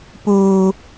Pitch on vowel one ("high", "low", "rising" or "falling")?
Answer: high